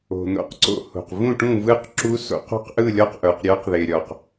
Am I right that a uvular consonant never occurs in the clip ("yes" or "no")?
no